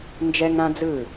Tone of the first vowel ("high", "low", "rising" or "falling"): high